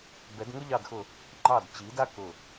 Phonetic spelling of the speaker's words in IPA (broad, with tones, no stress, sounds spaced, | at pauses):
b ɛ˩˧ d ŋ ʊ˦ ʎ ɑ˧˩ d x ʊ˧˩ | ŋ͡ǃ ɑ˧˩ d t͡ɕ i˩˧ d a˦ k ʊ˧˩